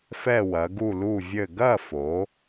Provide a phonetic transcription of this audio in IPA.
f ɛ˦˨ w ɐ˩˧ ɡ u˦˨ l u˦˨ vʲ ɘ˦˨ ɡ ɐ˦˨ f o˩˧

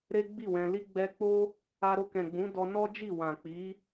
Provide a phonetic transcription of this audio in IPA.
ɾ e˦ ɡ͡b i˦˨ w ɛ̃˧ l i˧ ɡ͡b ɛ˧ k͡p o˦ | a˧ ɾ o˧ k ɛ̃˨ ɡ͡b ũ˨˦ d ɔ˧ n ɔ˦ d͡ʒ i˦˨ w ã˨ k͡p i˨˦

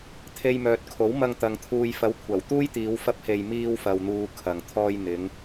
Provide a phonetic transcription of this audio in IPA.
t̪ʰ e˨ j m œː˨ t̚ kʰ o˨˥ w m ɐ˧ ŋ t̪ ɐ˨ ŋ t̪ʰ uː˨ j f ɐ˨˥ w kʷʰ ɐ˨˩ w t̪ uː˥ j t̪ iː˨˧ w f ɐ˥ p̚ h e˧ j m iː˧ w f ɐ˨ w n̪ uː˨ kʰ ɐ˨ ŋ t̪ʰ ɔː˧ j n̪ ɪ˨˧ ŋ

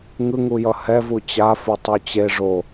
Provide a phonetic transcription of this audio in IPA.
ŋ ɯ ŋ u j ʌ h ɛ v u t͡ɕ a f u tˤ u t͡ɕ e ʐ o

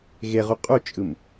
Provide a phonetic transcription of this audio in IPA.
ɣ e ʁ u qʼ u t͡ʃʼ ɯ m

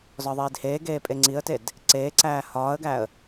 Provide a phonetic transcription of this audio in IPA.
z ɒ ðˤ iː d h eː ɡ eː pʼ e ŋ͡ǀ i ə̯ t e d | ǀ eː ǀ æː h ɒː ə̯ ɡ æ ə̯

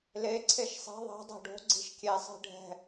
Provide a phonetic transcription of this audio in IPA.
l e ǀʰ e ʃ sˤ e̤ ðˤ e̤ dˤ e̤ ɖ o̤ ɡ͡ǀ i̤ ʃ kʲ e sˤ e̤ ɖʱ ɛ̤

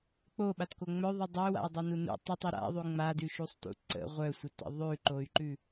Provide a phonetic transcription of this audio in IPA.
k͡p o ɓ a t k o ŋ͡m œ ðˤ u dˤ ə u̯ w a̰ i̯ dˤ o n u n ṵ tˤ u tˤ ʉ ɾ a̰ ðˤ ʉ ŋ͡m a d ʉ ʃ u sˤ t ṵ ǀ ə̰ ʁʷ œ sʷ œ t ə̰ ðˤ ʉ ǃ o y̯ ǃ ʉ

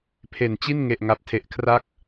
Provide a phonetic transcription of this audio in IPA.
pʰ e˨˩ n t͡ɕ i˥˩ n ŋ e˨˩ ʔ ŋ a˨˩ p̚ tʰ e˨˩ ʔ kʰ r a˦˥ k̚

